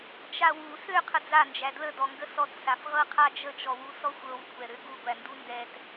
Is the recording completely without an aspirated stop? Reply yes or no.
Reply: no